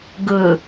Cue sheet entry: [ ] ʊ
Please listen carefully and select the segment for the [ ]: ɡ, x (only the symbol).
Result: ɡ